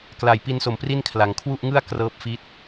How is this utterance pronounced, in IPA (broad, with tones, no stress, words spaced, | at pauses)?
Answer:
kla˨˩j pi˧nso˨˩m pri˥˩nkʰla˩˦ŋ kʰwu˥˩ʔŋɯ˥˩a̯ krɤː˦˥p̚fi˦˥t̚